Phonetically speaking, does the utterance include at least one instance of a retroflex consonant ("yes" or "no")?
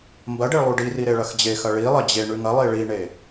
yes